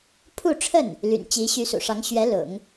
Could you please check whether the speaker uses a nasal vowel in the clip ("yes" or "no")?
no